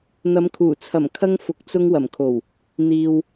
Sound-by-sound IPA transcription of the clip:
n̪ ɐ˨˧ m kʰ uː˨˩ t͡sʰ ɐ˨˩ m kʰ ɐ˧ ŋ f ʊ˨ k̚ t͡s ʊ˧ ŋ w ɐ˨˩ m kʰ o˨˩ w | n̪ iː˨ w

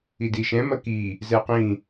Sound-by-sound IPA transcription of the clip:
i d i ʃ ɛ̃ m ɐ k i | z ɛ q ĩ

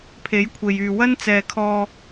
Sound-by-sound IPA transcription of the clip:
pʰ e˨˥ j kʷʰ e˨ j yː˨ w ɐ˥ n t͡s ɛː˨ kʰ ɔː˧

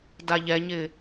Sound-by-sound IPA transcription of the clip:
d a ʎ ɛ ɲ ɪ

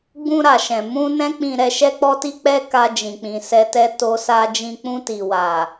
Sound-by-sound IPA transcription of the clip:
ɡ͡b ũ˧ ɾ a˨ ʃ ɛ̃˨ m ũ˧ n ɛ̃˦ k͡p ĩ˧ ɾ ɛ˧ ʃ ɛ˦ k͡p ɔ˦ t i˦ k͡p ɛ˦ k a˧ d͡ʒ ĩ˨ k͡p ĩ˨ s ɛ˧ t ɛ˦ t o˦ s a˦ d͡ʒ ĩ˦ k͡p ũ˧ t i˨ w a˨

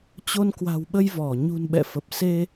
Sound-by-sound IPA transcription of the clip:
t͡ɕ o˧ n k w a̤˨˩ w ɓ ə˧ j v ɔ˧˩ ɲ ṳ˨˩ n ɓ ɛ̰˧˨ f ə˨˩ p̚ s e˧

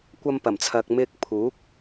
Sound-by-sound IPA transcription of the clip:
kʷ ɐ˧ m p ɐ˨˩ m t͡sʰ ɐ˨ k̚ m ɪ˥ k̚ pʰ uː˨˥ k̚

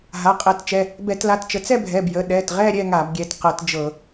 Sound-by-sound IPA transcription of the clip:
ɦ a˩˧˩ qʼ ɛ˧˩˧ t t͡ʃ ɛ˩˧˩ | b ɛ˧˩˧ t l a˩˧˩ t t͡ʃ ə˨˦ t͡s ɛ˥˧ bʱ ɛ˩˧˩ b j ə˩˧˩ ɗ ɛ˩˧˩ t ʁ ɛ˥˧ ɾʲ ɛ˥˧ ŋ a˧˩˧ b ɡʲ ɛ˩˧˩ t q ɤ˧˩˧ t d͡ʒ ɤ˧˩˧

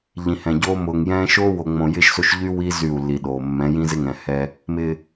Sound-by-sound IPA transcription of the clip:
ʎ ĩ˨ h ɛ̃˨ ɟ oː˦ m ʊː˨ ŋ j ɛ̃ː˦ ʃ oː˦ w o˨ ŋ͡m õ˨ j ɪ˦ ʃ s o˦ ʃ ʎ y˦ w i˦ z y˦˨ u̯ lː i˨ ɗ oː˨ mː ɛ̃˨˦ j ĩ˦ z ɪ˦ ŋ ɛ̃˨ h ɛ˦ | m ɪ˨

